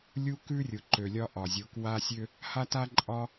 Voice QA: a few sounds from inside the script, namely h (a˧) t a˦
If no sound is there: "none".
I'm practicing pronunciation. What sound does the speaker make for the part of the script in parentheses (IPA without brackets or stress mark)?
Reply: a˦